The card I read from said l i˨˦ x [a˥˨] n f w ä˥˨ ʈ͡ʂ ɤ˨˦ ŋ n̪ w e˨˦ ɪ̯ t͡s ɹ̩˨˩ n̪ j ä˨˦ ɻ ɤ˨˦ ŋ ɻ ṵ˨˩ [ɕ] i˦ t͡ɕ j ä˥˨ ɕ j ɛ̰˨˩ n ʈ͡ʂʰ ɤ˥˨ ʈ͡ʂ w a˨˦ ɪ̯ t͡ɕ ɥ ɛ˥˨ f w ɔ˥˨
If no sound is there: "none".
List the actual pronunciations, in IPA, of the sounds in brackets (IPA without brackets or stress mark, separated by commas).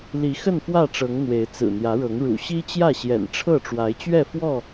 ə˥˨, ɕ